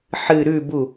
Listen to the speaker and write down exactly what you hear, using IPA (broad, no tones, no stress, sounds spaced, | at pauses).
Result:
ħ ɨ ɾ ʉ b u